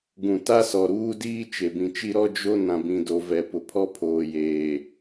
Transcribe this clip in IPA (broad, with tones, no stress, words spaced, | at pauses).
ɡũ˨ta˦sɔ˨ ɾuː˦diː˦ t͡ʃe˨bĩ˨t͡ʃi˦ ɾɔ˦d͡ʒo˦ nã˨bĩ˨do˨ vɛ˨pʊ˨pʰɔ˦ pʰoː˨jeː˨